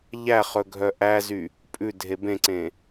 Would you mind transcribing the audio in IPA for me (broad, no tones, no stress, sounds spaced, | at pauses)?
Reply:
ʎ æ χ ɵ ɡʱ œ ʔ æ z y | pʼ ʉ dʱ e b ẽ ǀ ẽ